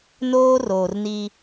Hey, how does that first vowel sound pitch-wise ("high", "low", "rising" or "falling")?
high